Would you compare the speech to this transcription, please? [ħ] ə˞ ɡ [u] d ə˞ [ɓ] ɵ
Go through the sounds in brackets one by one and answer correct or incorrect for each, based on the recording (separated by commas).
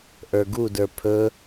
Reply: incorrect, correct, incorrect